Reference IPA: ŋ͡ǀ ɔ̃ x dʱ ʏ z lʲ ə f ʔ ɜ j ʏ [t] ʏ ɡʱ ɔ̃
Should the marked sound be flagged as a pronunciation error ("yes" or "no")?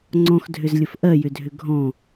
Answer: yes